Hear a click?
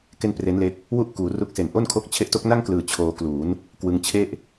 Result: no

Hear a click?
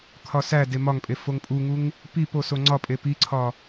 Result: yes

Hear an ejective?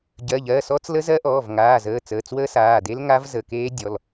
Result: no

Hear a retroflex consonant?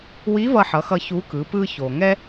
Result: no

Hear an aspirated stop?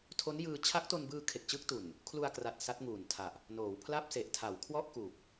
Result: yes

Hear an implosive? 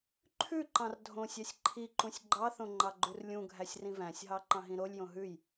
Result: no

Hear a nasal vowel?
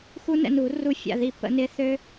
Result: no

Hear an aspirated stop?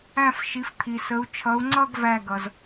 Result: yes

